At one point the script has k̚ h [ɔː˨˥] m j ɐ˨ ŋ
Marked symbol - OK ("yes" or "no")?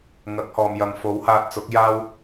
no